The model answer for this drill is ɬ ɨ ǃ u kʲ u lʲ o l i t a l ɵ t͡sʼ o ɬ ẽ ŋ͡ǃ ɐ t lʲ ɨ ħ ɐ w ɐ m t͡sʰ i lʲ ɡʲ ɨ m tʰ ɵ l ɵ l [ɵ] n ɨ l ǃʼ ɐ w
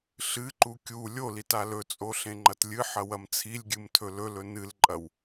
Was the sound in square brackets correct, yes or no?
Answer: yes